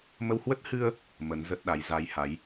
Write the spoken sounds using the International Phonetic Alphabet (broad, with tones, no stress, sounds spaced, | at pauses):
m ə˧ w h w ə˦˥ t̚ h ɨ˧ ə̯ | m ə˨˦ n z ə˦˥ t̚ ɗ a˨˦ j z a˧ j h a˨˦ j